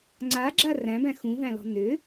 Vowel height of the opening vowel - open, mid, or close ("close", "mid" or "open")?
open